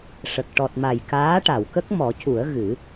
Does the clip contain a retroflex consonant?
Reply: yes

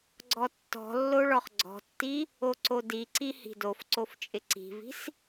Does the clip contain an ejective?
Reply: yes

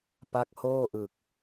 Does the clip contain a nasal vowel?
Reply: no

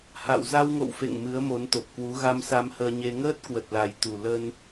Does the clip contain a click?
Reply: no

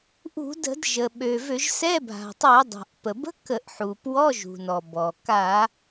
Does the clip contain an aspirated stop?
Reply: no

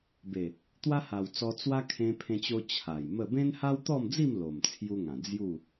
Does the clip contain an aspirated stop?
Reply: yes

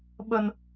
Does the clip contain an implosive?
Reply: yes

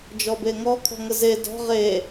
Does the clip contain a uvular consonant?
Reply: yes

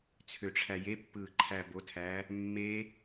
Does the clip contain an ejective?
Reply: no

